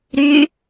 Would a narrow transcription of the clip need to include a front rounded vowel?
yes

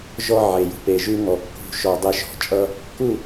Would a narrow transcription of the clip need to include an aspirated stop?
no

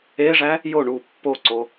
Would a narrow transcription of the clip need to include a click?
yes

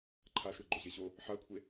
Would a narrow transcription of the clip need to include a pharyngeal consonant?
yes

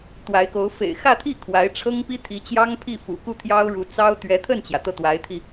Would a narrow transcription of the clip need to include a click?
no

